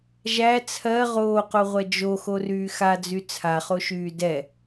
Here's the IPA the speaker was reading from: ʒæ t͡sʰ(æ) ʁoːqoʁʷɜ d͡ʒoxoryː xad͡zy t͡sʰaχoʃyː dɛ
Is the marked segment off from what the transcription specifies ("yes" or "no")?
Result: yes